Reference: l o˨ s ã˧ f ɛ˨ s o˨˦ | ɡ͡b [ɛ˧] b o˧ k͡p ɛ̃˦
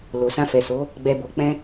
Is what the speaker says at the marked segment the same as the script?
yes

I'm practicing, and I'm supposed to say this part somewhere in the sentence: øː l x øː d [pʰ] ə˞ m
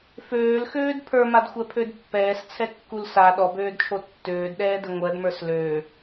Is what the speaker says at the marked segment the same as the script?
yes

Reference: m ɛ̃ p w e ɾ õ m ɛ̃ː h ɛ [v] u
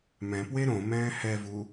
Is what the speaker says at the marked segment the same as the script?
yes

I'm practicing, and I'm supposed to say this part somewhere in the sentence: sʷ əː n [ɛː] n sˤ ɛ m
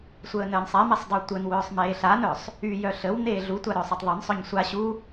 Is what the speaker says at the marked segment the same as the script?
no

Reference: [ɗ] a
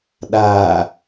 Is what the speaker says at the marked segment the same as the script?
yes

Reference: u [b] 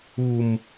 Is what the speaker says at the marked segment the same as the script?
no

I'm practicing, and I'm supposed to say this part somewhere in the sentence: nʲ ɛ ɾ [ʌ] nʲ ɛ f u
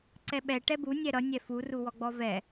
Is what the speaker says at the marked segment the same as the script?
yes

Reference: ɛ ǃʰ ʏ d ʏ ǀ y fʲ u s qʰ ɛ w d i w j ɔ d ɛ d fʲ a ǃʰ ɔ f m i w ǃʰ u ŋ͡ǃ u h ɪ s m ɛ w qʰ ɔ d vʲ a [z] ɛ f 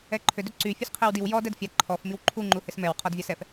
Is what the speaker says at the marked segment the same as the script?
no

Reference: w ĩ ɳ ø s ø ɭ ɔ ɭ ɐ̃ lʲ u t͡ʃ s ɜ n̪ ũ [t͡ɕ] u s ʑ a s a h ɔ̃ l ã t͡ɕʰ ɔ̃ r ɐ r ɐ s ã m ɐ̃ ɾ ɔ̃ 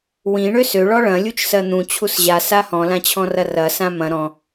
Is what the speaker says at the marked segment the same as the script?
no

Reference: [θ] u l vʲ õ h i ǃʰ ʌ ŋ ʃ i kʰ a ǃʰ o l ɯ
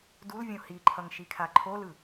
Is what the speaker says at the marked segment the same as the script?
no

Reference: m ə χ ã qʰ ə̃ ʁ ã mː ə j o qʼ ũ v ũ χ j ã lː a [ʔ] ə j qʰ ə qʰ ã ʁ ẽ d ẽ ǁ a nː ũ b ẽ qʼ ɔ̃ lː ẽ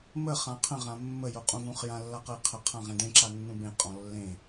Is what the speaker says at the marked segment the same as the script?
no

